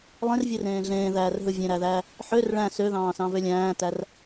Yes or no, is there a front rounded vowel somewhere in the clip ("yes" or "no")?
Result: yes